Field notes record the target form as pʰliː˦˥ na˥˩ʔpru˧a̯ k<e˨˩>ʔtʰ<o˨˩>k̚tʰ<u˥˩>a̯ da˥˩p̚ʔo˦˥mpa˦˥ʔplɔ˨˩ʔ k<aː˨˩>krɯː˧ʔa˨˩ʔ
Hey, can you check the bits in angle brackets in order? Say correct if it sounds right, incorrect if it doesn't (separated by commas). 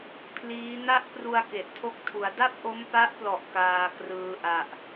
correct, incorrect, incorrect, incorrect